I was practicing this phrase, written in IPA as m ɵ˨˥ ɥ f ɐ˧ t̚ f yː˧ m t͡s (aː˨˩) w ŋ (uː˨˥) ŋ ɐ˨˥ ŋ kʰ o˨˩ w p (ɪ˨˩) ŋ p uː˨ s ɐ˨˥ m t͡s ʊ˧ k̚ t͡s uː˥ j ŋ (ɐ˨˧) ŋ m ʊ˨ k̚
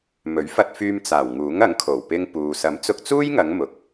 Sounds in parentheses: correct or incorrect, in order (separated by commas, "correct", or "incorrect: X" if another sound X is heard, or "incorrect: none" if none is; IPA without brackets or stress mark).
correct, correct, incorrect: ɪ˧, correct